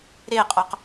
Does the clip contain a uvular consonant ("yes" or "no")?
yes